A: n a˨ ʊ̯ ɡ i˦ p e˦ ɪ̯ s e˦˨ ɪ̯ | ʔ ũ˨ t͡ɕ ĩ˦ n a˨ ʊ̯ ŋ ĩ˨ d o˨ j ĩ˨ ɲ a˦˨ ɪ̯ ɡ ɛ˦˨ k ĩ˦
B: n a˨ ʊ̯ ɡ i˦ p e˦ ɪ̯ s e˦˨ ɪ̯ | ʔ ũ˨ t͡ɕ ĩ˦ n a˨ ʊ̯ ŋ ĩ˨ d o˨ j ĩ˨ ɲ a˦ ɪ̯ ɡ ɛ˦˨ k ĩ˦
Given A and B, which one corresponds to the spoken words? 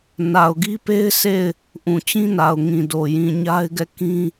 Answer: B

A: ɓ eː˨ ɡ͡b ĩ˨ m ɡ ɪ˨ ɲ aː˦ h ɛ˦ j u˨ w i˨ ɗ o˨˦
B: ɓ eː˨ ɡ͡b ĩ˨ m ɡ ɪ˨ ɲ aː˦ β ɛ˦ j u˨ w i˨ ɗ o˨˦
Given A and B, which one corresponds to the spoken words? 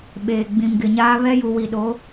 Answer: B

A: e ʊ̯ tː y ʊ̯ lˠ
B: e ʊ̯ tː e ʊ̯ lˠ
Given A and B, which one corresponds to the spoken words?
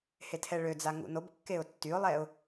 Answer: A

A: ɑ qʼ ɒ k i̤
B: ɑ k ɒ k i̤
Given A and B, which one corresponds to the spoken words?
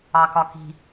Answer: B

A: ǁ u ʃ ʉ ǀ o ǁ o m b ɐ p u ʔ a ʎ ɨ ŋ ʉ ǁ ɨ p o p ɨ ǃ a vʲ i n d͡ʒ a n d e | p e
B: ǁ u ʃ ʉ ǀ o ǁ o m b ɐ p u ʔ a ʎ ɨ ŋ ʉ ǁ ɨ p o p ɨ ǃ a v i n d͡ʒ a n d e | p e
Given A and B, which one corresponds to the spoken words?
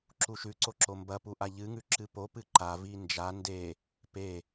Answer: B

